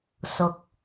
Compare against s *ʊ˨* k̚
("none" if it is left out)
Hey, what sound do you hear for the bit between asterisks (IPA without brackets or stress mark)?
ʊ˨